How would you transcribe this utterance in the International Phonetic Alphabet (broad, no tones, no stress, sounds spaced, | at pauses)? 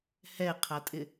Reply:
h ɛ qʰ a tʼ ɪ